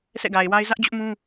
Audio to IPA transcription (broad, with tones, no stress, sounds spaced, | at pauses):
s ɛ̰˦˨ ɡ a˨ ɪ̯ w a˦ ɪ̯ z ä˦ ʔ d͡ʑ ʊ˦ ʔ m ũ˦